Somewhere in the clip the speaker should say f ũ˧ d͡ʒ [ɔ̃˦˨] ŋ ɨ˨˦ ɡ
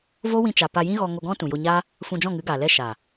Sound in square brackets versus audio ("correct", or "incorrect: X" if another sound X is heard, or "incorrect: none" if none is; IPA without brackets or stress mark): correct